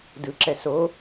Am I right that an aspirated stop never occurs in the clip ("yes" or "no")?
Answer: yes